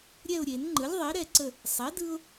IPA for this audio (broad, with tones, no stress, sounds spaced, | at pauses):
ɾʲ ɛ˦˨ ʊ̯ ɾʲ e˨˩˦ n ŋ͡ǃ ɯ˩˥ lʲ ðˤ e˩˥ ɾ ɛ˦˨ ǀ ə˦˨ | sˤ ɛ˩˥ d ɯ˦ ʊ̯